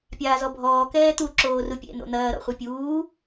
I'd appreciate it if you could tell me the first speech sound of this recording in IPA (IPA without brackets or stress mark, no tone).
pʲ